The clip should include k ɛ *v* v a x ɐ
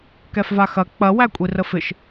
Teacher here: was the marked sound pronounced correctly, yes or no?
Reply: no